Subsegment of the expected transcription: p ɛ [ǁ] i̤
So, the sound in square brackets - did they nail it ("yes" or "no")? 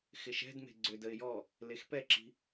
yes